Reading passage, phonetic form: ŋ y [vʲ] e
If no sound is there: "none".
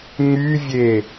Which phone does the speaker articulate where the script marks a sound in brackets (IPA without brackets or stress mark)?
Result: vʲ